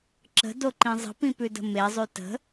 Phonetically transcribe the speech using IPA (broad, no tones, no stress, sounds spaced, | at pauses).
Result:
ǁ ə̤ d o ǃ ĩ zˤ ə̤ p ĩ p ʉ d ə̤ m e zˤ y t ə̤